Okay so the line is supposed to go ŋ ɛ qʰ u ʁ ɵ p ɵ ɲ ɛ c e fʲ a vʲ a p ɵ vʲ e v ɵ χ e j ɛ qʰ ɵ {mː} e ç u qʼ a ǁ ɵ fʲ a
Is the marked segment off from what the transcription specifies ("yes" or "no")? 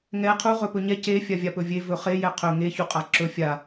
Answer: yes